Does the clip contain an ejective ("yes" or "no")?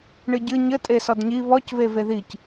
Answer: yes